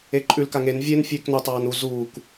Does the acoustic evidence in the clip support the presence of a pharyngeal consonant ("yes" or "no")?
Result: no